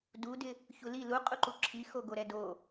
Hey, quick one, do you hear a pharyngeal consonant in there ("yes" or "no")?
no